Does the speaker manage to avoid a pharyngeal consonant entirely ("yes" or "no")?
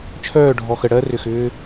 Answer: yes